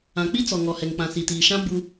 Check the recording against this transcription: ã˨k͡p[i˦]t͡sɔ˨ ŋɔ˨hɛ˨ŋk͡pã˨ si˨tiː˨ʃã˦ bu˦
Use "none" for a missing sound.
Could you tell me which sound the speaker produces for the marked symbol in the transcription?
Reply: i˦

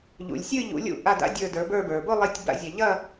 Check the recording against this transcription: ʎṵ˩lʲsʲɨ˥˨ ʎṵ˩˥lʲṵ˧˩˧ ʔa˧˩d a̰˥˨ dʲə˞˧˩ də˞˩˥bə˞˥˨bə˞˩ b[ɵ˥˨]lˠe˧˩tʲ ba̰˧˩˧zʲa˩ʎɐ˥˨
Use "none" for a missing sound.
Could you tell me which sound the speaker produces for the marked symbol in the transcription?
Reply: ʊ˥˨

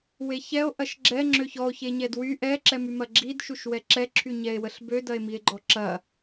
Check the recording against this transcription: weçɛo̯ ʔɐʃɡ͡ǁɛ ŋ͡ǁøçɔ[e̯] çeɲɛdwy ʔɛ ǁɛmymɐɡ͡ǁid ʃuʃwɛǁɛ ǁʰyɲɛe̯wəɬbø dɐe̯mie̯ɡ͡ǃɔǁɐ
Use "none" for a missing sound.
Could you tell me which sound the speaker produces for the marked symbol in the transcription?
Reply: o̯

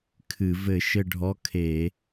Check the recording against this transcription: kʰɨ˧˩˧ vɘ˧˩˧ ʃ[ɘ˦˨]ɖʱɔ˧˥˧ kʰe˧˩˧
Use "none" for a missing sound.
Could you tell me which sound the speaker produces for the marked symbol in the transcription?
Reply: ɘ˦˨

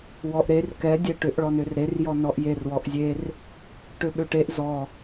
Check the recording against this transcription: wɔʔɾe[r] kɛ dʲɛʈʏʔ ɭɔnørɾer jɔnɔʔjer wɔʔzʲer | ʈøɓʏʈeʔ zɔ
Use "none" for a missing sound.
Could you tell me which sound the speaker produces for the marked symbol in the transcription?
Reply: r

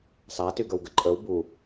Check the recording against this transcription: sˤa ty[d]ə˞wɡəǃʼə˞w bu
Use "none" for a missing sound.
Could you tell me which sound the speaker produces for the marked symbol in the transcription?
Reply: ɡ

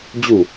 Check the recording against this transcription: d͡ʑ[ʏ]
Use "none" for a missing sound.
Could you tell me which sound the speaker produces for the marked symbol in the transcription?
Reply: u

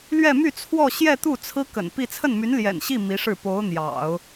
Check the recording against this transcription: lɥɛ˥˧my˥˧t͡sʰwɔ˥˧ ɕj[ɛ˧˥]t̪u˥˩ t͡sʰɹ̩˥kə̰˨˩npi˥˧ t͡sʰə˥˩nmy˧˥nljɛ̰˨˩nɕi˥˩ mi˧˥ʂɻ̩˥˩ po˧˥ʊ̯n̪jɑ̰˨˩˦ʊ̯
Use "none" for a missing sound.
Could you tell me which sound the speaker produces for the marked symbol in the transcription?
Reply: ɛ˥˧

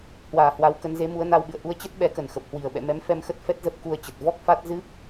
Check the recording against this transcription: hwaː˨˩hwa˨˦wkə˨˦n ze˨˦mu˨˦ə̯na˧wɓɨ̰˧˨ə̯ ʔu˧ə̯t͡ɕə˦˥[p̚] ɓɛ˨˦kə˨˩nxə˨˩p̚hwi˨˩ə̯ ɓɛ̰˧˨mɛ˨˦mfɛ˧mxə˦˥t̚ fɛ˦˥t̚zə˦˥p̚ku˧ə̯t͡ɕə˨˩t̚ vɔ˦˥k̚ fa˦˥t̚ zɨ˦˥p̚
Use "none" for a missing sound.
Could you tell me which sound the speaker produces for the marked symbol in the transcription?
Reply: t̚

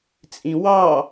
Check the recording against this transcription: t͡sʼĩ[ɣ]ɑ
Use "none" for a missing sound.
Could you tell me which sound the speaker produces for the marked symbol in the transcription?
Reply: w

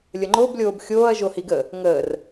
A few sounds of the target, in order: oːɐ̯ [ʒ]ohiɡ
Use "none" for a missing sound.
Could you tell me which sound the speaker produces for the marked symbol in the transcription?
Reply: ʒ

